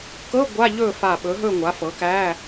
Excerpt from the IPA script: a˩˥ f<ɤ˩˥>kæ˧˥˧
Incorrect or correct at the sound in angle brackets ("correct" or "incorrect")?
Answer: correct